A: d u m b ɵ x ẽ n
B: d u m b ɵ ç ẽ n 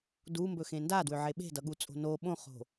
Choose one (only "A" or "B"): A